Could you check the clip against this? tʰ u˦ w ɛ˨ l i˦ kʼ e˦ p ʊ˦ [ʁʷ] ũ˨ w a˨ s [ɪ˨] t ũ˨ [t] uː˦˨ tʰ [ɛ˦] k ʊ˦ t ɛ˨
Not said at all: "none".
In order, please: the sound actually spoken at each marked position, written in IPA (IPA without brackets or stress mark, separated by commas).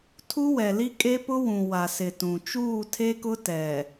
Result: w, ɪ˨, t͡ʃ, e˦